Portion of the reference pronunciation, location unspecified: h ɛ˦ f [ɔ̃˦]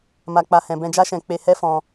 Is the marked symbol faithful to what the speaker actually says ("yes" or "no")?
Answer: no